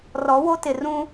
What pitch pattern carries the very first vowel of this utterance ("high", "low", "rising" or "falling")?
rising